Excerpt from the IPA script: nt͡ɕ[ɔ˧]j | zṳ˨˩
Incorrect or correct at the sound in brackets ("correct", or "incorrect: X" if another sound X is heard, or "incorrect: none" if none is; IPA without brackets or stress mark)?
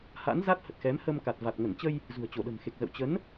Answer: incorrect: ə˧